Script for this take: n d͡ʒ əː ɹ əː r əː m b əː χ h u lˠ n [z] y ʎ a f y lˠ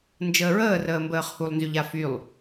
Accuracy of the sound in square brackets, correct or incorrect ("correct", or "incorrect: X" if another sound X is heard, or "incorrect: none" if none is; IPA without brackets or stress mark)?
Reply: correct